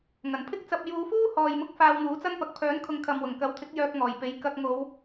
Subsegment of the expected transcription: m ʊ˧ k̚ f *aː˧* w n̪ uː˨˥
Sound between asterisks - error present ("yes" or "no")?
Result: no